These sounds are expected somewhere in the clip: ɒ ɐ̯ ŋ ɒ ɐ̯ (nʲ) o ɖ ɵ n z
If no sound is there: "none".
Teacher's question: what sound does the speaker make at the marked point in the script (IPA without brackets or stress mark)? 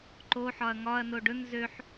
n